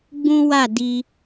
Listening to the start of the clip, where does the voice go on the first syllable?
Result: high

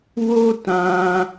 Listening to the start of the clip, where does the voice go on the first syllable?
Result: high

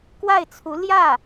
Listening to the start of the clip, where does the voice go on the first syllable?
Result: falling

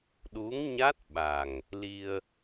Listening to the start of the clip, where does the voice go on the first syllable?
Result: rising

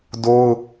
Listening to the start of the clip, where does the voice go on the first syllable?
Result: high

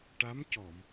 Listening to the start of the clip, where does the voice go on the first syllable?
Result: rising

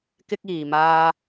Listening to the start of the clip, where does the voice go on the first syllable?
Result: high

